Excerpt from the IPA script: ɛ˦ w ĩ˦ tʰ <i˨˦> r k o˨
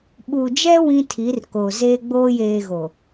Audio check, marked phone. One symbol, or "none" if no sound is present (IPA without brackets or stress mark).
i˨˦